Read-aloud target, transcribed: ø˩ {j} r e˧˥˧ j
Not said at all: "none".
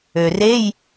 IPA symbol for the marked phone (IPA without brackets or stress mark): none